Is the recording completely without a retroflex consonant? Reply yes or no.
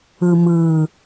yes